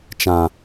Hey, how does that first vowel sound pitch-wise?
low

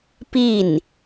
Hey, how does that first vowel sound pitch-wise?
falling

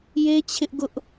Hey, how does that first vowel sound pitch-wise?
high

